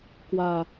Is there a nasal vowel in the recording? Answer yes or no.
no